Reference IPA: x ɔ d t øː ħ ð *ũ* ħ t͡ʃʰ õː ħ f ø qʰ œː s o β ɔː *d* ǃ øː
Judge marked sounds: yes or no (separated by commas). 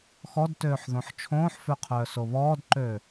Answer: no, yes